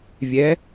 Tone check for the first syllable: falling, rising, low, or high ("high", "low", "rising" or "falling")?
rising